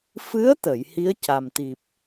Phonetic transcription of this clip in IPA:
fɨ˧˥ə̯t̪ə˨˩˨j hi˧˥ə̯ca˨˩mt̪i˨˩p̚

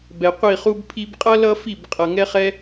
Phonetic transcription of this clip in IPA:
bɛ˨qʷi˦˨χu˦b pʰi˧bqʼʌ˦ lʌ˦fi˦˨b qʼʌ˨ŋɛ˧χɛ˧

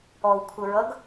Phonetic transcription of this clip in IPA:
ɔwkʷʰəɹʌɡ

